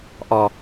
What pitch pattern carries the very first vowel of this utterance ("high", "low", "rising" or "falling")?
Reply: low